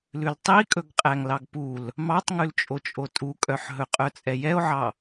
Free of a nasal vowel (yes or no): yes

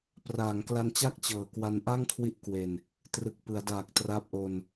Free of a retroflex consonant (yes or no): yes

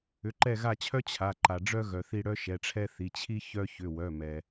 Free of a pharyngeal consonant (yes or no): yes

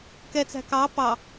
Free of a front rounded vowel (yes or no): yes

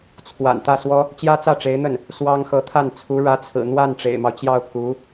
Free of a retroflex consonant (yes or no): no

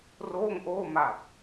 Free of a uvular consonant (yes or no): yes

